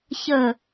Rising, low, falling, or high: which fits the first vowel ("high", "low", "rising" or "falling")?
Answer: falling